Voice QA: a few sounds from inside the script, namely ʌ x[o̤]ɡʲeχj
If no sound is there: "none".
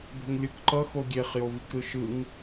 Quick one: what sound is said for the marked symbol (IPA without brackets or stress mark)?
o